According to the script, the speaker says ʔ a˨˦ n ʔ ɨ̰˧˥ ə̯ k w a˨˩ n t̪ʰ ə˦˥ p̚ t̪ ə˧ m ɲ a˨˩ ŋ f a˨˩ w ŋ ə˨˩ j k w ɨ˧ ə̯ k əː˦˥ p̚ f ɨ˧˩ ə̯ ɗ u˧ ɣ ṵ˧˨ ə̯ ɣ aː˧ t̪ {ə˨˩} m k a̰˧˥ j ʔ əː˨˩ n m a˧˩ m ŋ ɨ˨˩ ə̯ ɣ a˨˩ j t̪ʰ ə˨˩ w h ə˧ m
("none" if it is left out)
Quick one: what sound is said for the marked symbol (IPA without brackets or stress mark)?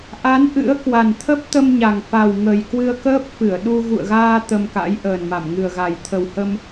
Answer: ə˧